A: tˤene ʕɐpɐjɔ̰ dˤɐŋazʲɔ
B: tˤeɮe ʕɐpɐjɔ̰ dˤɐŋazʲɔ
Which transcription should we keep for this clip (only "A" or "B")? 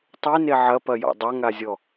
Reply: A